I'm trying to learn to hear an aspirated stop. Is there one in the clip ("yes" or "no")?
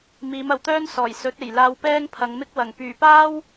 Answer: yes